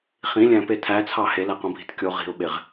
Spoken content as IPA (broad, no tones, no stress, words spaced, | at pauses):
χĩlʲæ̃pe tʰæt͡sʰɑ helæqõbʱi̤t kʲo ʁi̤ʊ̯ɓeʁ